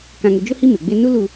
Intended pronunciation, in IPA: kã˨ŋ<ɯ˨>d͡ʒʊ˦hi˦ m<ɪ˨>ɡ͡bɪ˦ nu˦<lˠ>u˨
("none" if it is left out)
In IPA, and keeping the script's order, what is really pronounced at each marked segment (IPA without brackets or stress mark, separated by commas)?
ʊ˨, ɪ˨, l